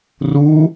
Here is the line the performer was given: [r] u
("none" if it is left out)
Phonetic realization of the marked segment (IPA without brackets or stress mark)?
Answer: r